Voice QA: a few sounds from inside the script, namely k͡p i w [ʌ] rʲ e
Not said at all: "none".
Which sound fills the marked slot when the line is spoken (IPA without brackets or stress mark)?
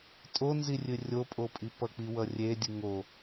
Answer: ʌ